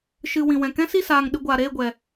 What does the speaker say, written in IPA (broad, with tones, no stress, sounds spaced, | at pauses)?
ʃ ɨ˨ w ĩ˨ w ɛ̃˨ k ɛ̃˦ s i˦˨ s aː˨ ŋ ɗ ɨ˨ ɡʷ aː˨ ɾ eː˦˨ ɡʷ ɛ˨